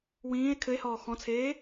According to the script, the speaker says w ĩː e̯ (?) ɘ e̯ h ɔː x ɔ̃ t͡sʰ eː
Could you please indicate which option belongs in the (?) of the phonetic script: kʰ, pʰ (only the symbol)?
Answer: kʰ